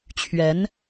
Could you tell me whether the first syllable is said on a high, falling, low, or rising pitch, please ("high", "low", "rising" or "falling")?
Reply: rising